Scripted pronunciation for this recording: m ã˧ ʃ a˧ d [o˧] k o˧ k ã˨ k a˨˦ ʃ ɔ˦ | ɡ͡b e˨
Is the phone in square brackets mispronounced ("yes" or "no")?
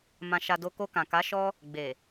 no